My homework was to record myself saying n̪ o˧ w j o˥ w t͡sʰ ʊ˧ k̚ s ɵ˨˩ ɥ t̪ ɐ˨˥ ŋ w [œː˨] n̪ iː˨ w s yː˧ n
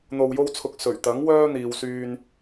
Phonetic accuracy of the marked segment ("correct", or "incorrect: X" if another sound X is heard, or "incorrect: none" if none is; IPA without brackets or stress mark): incorrect: œː˥